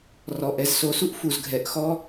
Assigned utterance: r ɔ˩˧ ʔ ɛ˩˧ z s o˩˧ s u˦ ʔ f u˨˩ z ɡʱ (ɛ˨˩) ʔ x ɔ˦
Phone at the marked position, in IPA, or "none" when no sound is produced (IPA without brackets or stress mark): ɛ˩˧